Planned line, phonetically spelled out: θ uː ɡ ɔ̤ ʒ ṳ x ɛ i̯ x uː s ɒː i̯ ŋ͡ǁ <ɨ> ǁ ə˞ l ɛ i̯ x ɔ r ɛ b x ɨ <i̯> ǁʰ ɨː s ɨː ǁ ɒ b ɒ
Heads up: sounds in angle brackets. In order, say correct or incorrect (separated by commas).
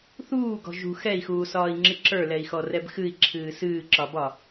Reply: correct, correct